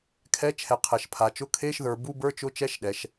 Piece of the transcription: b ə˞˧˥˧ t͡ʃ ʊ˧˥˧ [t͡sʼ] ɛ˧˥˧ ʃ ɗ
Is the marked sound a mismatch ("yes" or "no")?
yes